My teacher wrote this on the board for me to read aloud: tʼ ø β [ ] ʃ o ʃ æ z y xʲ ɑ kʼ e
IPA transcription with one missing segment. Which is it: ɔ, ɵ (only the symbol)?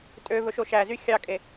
ɵ